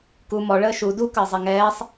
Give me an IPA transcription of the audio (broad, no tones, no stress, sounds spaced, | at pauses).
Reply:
k u m ɔ ɭ əː ʃ u d u k əː zˤ ɛ ŋ ɛː sˤ